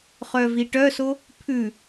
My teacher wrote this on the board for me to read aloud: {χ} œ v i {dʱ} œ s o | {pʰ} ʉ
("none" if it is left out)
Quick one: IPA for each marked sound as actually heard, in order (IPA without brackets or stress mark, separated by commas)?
χ, ʈ, pʰ